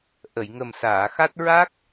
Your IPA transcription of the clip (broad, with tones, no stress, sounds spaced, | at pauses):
ʔ ə˨˩˨ j ŋ ə˨˩ m s aː˨˩˨ x a˦˥ t̚ ɹ a˦˥ k̚